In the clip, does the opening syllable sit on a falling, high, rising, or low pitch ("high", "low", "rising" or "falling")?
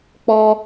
high